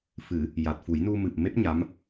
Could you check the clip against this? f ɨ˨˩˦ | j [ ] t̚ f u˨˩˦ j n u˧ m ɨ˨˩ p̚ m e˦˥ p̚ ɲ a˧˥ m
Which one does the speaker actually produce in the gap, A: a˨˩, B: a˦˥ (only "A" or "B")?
A